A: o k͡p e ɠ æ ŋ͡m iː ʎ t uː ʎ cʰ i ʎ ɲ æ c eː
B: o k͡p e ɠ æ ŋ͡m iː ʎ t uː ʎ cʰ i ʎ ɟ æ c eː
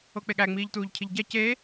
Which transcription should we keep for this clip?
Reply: B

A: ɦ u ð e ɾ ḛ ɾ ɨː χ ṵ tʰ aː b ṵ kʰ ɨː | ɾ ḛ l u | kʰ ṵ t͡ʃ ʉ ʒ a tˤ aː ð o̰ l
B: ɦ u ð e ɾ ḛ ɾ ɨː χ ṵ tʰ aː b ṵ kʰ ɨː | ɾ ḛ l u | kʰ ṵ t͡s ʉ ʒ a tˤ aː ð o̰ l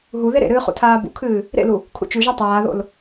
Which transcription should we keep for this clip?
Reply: A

